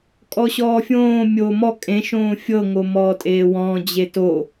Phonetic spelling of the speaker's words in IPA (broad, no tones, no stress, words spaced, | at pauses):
kʼɔɕɔːfʲõː mʲomɔ kʼẽʃõː fʲɤŋo mɔːtʼeːwɔ̃d͡ʑe to